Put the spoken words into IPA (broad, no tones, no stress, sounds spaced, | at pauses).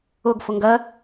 ʊ ɡ f ʊ ŋ ɡ ɜ